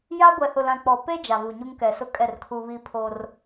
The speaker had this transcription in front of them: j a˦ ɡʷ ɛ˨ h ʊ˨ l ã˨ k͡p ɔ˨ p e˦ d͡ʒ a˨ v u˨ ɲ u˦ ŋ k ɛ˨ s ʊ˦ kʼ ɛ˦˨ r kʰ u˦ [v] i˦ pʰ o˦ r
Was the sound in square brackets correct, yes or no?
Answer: no